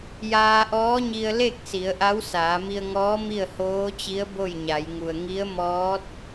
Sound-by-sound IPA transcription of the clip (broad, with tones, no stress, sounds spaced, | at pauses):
j aː˧ ʔ ɔː˧˥ ɲ i˧ ə̯ l e˥˨ k̚ s i˩˧ ə̯ ʔ a˧˥ w s aː˩˧ m i˧ ə̯ ŋ ɔː˧˥ m i˥˨ ə̯ h oː˧˥ t͡ɕ i˧˥ ə̯ b o˥˨ j ɲ a˩˧ j ŋ u˩ ə̯ ŋ i˧˥ ə̯ m ɔː˧˥ t̚